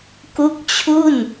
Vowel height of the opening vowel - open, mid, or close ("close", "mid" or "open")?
close